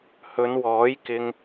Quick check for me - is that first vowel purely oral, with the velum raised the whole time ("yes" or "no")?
yes